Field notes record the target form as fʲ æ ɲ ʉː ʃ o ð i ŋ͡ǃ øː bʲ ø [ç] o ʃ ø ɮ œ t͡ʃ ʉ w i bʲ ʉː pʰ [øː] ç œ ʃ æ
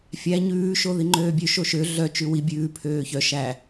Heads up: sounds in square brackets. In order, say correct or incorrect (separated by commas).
incorrect, correct